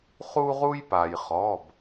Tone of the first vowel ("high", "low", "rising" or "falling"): high